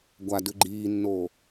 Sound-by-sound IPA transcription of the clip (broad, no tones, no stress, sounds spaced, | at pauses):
ɡʷ a d ʉ ɡ͡ǃ iː nː oː